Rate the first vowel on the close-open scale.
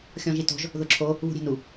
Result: mid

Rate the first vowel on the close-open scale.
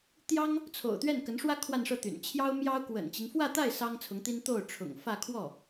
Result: open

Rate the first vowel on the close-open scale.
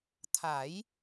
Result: open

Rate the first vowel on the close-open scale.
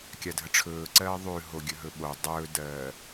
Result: open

